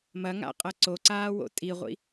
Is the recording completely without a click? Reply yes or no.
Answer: no